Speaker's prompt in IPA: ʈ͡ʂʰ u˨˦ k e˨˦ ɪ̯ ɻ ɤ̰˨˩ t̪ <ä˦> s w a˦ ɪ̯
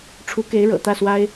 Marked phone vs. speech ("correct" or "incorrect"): incorrect